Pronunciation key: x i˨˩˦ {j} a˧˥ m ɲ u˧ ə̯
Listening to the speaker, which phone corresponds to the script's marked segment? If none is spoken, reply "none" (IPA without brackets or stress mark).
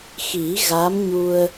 ɣ